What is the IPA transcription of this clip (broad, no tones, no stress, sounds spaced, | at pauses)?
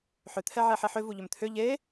ħ ʏ t̪ʰ ɛ ʕ ɛ ħ e ħ ʏ v u ʎ ʏ m t̪ʰ ʏ ʎ e